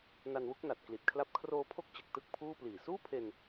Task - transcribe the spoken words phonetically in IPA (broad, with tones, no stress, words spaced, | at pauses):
na˧nwu˦˥k̚na˨˩t̚ kli˨˩t̚kʰla˦˥p̚ kʰroː˧pʰo˦˥k̚ t͡ɕɯ˨˩k̚tɯ˥˩k̚pʰuː˥˩pliː˨˩ suː˥˩pʰe˧n